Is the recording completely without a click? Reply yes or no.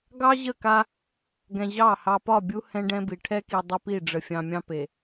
yes